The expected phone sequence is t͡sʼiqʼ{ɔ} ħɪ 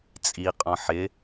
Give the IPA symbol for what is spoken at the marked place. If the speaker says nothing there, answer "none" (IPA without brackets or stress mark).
ɔ̃